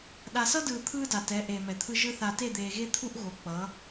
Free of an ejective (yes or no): yes